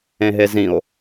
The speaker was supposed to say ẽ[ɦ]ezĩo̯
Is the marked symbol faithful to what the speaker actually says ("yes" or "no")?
yes